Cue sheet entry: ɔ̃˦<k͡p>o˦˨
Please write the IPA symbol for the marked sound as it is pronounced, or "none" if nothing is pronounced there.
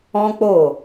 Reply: k͡p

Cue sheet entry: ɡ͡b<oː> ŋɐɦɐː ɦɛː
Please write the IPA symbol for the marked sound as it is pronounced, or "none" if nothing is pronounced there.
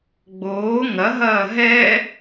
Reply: oː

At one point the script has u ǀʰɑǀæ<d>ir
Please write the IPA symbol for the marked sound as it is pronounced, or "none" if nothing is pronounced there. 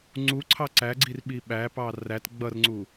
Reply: ɡ͡ǀ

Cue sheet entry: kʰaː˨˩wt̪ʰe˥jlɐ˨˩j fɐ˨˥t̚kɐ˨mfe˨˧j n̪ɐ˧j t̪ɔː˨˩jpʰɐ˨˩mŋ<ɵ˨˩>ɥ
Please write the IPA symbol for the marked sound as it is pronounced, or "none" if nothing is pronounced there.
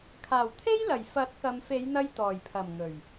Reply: ɵ˨˩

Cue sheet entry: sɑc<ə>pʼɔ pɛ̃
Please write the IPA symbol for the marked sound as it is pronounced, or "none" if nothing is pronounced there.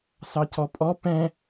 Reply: ɔ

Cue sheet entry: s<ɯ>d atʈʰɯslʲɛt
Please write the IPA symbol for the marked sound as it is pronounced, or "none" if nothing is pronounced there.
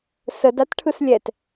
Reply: ə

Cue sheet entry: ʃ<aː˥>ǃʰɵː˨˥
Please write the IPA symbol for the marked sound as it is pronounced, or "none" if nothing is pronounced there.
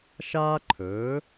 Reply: aː˥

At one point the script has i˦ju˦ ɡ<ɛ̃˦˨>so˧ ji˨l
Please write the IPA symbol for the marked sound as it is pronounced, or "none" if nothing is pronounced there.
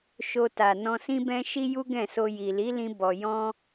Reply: ɛ̃˦˨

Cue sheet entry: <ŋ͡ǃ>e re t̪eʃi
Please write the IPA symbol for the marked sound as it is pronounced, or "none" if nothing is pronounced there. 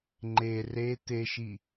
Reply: ŋ͡ǃ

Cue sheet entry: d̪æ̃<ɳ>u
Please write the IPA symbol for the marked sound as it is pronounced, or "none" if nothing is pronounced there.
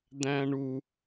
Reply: ɳ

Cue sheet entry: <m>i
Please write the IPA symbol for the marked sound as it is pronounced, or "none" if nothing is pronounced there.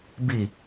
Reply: b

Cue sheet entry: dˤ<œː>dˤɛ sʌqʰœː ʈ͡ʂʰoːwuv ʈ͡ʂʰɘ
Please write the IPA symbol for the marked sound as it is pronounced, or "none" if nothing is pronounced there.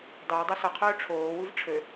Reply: əː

